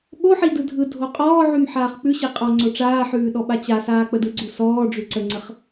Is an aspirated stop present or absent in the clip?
absent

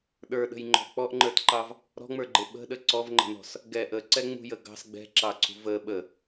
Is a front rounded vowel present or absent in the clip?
absent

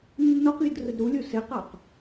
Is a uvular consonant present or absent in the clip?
present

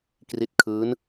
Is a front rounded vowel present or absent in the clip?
absent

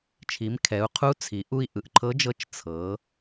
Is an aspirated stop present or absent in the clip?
present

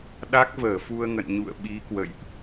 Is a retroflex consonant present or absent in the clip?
absent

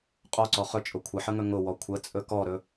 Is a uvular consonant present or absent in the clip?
present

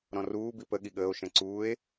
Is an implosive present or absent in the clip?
present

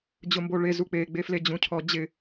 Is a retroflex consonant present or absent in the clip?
present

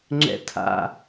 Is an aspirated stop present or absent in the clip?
present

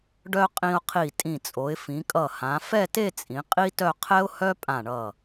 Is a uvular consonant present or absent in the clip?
present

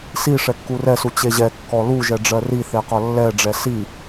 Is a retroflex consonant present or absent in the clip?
present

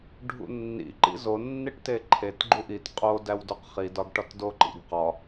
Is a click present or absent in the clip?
present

